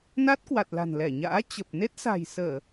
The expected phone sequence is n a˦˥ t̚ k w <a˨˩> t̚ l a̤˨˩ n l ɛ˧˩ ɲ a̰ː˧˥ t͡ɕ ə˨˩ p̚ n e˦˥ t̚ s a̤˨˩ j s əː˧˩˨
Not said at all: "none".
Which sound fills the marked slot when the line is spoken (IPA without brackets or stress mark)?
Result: a˨˩